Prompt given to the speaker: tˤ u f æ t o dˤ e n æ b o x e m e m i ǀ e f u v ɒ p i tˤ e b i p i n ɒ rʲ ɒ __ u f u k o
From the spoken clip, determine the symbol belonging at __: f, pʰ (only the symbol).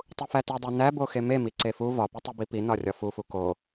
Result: f